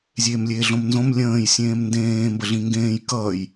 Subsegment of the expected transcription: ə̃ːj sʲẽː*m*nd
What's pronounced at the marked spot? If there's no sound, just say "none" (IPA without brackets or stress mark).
m